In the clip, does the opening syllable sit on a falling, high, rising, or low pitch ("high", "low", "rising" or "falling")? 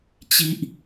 high